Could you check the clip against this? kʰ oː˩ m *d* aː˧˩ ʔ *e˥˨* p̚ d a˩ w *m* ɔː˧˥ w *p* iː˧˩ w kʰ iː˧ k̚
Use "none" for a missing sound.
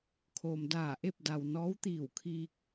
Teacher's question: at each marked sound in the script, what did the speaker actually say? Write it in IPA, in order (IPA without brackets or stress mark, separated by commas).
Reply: d, e˥˨, n, t̪